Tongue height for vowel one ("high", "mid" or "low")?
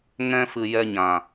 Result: mid